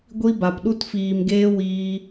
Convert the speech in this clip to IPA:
ɡʷ i˧ b a˨ p ɗ u˧ t f iː˨ m ɡ eː˧ w iː˧

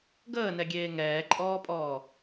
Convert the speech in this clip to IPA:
ɡ əː n ɛ ɡʲ eː ŋ ɛː ǃʼ ɔː pʼ ɔː

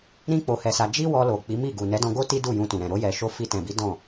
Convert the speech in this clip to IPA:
ɾ ĩ˦ k͡p o˧ h ɛ˧ s a˧ d͡ʒ i˦ w ɔ˧ l o˨ k͡p i˨˦ m i˦˨ ɡ u˨ n ɛ˨˦ d ɔ̃˧ ɡ o˦ t i˦ d u˦˨ j ũ˧ t ũ˨ ɾ ɛ̃˨ ɾ o˧ j ɛ˨ ʃ o˧ f i˧ t ɛ̃˨ b i˨˦ d ɔ̃˦˨

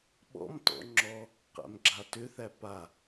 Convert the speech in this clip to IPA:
ɓ ɔ̰ m t ɔ̰ ŋ͡ǁ ɔ | q æ̰ m ɡ͡ǁ a t ʏ θ æ p a

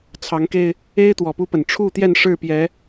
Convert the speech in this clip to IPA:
t͡sʰ ɑ˨˦ ŋ k e˧ ɪ̯ | e˦ ɪ̯ t̪ w ɔ˨˩ p u˦ p ə˨˩ n ʈ͡ʂʰ u˥˨ t̪ j ɛ˥˨ n ʂ ɻ̩˥˨ p j ɛ˨˦

